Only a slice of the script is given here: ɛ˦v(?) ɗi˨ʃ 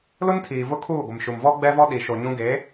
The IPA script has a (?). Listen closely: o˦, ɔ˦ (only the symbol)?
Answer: ɔ˦